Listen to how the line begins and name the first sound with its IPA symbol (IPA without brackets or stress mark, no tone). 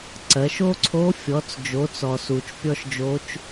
ǀ